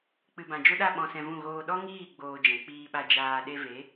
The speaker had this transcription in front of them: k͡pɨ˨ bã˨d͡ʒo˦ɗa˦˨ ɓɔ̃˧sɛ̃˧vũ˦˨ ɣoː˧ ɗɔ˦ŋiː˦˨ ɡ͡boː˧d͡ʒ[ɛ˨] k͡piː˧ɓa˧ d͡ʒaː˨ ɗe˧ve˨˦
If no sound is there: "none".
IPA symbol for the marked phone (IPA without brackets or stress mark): ɛ̃˨